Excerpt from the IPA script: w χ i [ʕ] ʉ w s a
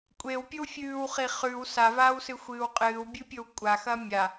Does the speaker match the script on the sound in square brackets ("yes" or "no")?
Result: no